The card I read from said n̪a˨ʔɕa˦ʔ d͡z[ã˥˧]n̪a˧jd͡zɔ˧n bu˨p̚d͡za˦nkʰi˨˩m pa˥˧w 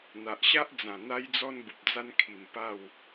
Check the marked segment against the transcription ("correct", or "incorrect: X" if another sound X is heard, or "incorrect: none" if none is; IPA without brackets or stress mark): incorrect: ã˨˩